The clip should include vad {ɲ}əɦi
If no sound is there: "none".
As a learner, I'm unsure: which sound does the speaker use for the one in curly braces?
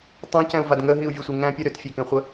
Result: ŋ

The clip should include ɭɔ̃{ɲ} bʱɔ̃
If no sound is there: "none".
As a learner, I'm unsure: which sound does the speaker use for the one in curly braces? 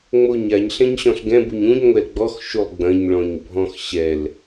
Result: ɲ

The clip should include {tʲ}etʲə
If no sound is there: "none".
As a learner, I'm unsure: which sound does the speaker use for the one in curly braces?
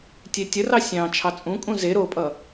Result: tʲ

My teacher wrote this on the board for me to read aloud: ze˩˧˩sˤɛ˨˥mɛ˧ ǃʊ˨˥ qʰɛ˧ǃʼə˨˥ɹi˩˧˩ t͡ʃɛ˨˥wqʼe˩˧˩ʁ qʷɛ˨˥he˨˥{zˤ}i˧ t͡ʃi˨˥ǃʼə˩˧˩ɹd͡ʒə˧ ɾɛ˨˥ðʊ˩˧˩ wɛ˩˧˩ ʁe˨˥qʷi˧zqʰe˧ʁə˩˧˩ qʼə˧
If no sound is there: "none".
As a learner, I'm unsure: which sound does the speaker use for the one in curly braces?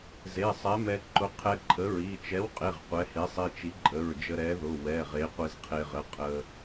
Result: sˤ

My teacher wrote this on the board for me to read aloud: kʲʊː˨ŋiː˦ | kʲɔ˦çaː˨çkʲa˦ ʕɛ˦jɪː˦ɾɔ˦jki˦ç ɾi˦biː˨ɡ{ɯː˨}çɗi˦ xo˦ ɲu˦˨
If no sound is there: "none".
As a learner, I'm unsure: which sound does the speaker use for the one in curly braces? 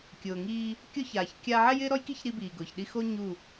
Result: ʊː˨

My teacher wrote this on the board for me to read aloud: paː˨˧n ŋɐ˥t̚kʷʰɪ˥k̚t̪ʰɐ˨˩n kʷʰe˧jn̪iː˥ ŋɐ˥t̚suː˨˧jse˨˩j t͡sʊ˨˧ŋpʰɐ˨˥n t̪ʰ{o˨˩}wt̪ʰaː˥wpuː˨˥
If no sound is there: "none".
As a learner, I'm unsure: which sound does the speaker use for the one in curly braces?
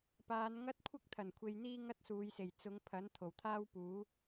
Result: o˨˩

